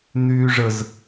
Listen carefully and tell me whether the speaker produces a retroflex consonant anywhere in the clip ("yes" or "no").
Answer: yes